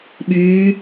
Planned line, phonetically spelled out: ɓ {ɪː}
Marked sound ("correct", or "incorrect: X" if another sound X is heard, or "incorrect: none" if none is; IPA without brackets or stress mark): incorrect: yː